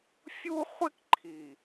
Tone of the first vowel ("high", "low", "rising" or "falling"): high